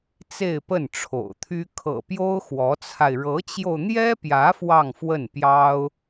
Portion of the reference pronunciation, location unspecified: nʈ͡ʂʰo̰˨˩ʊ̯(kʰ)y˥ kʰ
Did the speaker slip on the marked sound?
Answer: yes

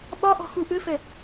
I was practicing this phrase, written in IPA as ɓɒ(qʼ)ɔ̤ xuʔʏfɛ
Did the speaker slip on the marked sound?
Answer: yes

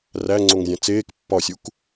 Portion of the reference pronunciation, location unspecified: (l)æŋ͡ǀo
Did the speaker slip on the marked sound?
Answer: yes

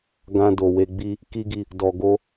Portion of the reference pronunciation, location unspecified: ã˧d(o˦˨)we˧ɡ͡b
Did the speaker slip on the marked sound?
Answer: yes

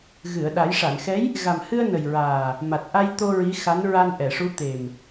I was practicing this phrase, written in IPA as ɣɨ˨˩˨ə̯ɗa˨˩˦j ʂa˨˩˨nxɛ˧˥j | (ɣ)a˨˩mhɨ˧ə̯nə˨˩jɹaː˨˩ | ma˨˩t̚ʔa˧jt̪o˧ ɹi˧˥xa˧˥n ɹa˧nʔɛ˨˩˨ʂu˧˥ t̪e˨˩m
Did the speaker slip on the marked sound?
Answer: no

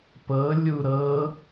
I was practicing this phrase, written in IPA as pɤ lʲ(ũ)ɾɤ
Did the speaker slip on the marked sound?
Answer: yes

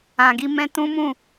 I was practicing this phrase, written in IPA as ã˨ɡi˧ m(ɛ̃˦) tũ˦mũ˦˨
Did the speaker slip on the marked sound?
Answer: no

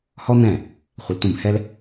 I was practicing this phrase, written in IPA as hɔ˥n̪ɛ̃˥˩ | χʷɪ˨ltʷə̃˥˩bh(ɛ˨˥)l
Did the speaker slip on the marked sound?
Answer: yes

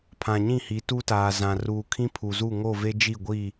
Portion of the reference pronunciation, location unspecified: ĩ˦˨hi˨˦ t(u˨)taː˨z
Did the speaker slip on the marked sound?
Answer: yes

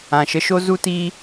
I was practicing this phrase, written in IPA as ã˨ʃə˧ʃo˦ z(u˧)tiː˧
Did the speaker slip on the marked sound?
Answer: no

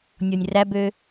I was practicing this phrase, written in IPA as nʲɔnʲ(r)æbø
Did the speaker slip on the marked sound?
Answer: no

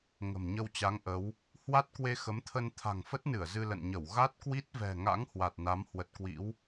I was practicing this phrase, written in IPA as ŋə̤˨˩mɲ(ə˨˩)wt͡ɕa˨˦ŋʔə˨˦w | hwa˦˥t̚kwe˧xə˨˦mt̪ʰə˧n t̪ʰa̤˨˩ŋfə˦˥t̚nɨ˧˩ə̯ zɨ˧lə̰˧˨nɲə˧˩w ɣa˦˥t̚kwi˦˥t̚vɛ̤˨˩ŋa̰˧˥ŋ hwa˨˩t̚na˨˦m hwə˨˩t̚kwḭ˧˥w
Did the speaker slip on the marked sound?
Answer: yes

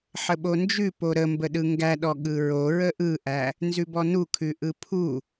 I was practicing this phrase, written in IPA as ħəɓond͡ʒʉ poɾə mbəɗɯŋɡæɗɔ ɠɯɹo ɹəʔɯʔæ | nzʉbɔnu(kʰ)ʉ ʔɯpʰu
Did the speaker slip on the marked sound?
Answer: no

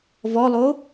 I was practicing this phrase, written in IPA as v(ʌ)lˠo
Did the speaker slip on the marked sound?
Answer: yes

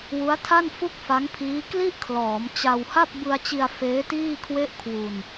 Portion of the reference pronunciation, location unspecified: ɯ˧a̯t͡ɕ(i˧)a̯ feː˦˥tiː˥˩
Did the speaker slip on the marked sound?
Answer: no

